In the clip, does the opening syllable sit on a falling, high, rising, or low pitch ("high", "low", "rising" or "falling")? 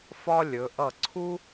high